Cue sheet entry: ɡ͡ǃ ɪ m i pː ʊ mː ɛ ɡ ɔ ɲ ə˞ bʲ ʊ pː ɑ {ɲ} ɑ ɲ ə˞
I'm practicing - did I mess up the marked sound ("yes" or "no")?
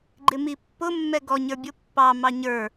yes